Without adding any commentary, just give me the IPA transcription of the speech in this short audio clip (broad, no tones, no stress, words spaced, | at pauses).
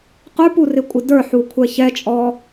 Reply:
qə˞purɪkʷʼɪ də˞ħukʷʰɛ çɛt͡ʃʼɔ